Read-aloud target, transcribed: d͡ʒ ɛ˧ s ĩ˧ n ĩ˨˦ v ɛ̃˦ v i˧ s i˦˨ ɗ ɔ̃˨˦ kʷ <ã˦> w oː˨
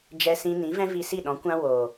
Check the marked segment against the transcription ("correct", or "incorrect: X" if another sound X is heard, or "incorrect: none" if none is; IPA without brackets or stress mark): correct